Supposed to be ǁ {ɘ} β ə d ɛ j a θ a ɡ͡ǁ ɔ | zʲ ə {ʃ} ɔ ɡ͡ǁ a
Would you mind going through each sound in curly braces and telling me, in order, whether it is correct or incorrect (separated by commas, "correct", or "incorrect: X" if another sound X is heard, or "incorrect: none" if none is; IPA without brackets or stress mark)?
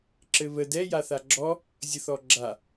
correct, incorrect: θ